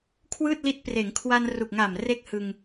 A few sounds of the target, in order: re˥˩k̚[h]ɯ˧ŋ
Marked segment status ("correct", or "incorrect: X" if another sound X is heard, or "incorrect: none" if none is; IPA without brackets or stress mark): correct